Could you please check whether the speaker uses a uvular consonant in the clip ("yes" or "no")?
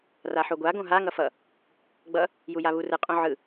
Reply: yes